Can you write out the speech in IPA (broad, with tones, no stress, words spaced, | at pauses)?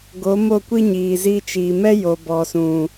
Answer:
ɡo˨˦mo˦˨kʷi˦ ɲiː˨zi˧ t͡ʃiː˨mɛ˦jo˨ bɔ˨sũ˨